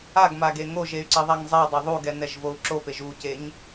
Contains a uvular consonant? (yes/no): no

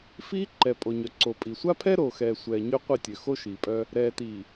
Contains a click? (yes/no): yes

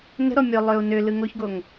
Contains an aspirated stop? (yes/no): no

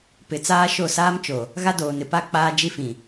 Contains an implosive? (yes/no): no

